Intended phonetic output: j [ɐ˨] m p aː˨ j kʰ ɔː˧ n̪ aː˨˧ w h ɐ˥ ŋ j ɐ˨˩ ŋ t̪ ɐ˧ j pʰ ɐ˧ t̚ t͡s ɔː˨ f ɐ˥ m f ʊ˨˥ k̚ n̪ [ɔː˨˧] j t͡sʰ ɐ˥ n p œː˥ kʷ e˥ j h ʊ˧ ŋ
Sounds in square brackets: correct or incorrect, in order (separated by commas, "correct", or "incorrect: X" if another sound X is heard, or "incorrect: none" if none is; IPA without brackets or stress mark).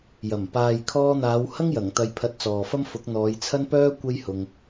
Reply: incorrect: ɐ˨˩, correct